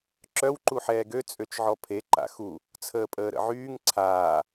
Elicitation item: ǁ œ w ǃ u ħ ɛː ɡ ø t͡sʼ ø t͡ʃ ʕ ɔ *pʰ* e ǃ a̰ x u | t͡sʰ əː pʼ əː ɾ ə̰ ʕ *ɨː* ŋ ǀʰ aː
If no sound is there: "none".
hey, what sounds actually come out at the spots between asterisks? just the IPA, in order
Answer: pʰ, yː

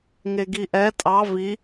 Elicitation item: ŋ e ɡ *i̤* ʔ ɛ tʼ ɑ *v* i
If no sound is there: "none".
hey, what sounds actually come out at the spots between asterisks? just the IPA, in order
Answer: i, v

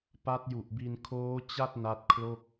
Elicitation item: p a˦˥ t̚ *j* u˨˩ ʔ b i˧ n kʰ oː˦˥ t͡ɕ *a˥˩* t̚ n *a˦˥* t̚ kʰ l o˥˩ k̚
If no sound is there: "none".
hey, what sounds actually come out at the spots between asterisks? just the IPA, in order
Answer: j, a˥˩, a˦˥

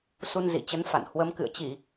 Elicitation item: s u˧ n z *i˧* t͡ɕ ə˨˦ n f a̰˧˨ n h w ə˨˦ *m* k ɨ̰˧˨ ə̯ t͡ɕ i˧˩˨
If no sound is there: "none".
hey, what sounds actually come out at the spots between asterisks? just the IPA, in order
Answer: ḭ˧˨, m

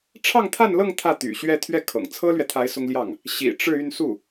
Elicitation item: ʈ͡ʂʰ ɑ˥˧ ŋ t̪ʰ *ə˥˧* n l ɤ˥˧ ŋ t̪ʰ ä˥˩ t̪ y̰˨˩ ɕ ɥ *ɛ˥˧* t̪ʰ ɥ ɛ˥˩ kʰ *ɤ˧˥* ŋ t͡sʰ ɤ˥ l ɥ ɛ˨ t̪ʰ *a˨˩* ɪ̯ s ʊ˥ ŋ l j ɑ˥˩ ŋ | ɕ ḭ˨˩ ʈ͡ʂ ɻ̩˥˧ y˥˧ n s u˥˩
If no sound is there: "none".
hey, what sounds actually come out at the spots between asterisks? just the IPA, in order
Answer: a˥˧, ɛ˥˧, ɤ̰˨˩, a˧˥

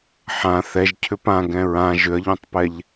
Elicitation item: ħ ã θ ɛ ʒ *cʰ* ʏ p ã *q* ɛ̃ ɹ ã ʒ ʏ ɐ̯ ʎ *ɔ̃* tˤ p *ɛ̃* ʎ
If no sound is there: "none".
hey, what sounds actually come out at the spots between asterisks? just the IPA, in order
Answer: cʰ, ɡ, õ, ɛ

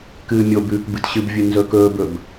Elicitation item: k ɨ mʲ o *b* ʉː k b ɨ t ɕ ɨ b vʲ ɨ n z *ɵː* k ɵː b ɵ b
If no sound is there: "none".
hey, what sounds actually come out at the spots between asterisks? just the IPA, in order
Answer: b, ɵː

